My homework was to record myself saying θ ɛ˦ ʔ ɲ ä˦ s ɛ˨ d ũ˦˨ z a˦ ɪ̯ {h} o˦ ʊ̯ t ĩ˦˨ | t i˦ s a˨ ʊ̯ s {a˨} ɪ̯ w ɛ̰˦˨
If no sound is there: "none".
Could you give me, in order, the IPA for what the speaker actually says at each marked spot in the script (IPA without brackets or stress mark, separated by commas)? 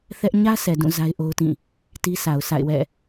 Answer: ʔ, a̰˦˨